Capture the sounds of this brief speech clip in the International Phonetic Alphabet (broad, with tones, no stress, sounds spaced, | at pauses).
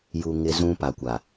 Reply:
j u˨ ŋ ɪ˦ z ũ˦ p a˨ kʷ a˨